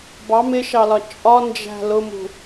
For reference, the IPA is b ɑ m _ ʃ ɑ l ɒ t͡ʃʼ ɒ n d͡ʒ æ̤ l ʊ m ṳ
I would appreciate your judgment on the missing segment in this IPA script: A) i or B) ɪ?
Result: B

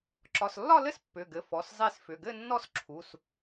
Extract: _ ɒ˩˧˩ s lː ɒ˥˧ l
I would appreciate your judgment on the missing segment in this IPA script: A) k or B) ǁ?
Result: B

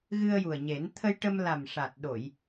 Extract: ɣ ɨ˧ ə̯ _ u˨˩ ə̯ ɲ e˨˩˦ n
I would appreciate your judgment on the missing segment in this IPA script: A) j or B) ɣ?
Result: A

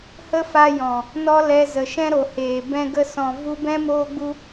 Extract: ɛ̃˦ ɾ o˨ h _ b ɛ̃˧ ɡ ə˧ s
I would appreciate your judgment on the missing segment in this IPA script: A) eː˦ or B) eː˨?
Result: B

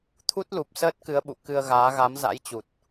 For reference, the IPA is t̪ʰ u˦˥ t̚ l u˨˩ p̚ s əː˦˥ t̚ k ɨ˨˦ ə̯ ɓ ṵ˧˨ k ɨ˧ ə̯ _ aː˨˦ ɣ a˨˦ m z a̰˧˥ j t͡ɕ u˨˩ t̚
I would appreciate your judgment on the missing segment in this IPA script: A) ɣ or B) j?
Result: A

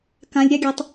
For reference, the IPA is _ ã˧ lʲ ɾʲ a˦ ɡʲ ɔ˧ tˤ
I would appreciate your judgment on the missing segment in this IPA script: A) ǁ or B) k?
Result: B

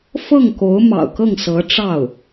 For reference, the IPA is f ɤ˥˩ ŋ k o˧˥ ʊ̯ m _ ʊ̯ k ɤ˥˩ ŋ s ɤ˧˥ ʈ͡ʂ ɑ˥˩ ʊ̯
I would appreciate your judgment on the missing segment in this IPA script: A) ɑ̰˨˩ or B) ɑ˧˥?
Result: A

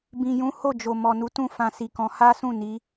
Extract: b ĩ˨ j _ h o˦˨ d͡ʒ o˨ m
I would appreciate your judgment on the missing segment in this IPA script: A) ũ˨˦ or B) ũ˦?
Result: A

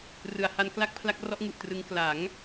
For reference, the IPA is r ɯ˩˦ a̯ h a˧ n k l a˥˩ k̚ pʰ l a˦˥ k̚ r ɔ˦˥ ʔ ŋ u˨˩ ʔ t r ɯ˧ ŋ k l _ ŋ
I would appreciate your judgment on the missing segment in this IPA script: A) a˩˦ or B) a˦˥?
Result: A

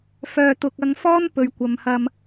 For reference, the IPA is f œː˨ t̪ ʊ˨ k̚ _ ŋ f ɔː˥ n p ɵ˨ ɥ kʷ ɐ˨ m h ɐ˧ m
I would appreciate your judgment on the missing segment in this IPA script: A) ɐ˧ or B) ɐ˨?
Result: A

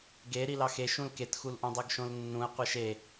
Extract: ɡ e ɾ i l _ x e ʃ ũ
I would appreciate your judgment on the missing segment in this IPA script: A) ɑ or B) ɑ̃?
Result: A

